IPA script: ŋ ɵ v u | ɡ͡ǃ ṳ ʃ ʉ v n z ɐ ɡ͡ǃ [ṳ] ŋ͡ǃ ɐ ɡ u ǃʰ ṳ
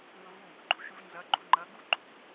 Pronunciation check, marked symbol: correct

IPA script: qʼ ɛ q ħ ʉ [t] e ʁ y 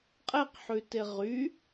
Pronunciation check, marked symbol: correct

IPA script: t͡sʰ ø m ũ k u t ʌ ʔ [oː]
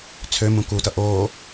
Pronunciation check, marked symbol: correct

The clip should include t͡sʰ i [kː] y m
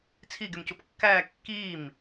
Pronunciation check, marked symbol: incorrect: ɡ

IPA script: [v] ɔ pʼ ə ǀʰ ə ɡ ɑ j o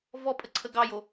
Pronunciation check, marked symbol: correct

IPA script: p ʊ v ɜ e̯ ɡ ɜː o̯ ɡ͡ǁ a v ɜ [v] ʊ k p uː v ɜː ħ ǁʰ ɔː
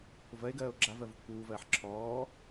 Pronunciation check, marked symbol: correct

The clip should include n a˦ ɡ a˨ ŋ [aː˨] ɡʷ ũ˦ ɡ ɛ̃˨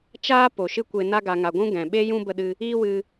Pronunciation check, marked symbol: incorrect: a˨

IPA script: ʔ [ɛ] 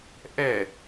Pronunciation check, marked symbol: correct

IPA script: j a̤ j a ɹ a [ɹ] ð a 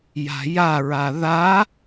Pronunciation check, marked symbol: incorrect: none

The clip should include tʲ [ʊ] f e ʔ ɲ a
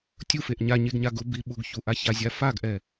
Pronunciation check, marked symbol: incorrect: u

